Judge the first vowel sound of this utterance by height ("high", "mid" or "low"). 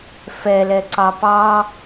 mid